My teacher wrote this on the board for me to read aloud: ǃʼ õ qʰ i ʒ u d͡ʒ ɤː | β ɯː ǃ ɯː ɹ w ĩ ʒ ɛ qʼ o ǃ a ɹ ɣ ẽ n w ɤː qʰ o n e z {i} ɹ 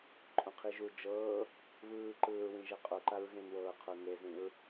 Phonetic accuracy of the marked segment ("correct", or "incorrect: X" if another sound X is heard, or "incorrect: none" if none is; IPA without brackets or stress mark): incorrect: ĩ